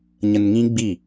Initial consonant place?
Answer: palatal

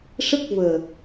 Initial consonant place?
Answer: retroflex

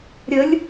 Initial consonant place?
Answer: alveolar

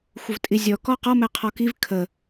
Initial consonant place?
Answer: velar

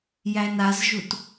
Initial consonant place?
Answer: palatal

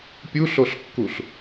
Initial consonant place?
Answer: labial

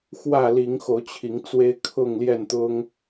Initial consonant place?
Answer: velar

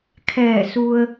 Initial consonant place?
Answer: velar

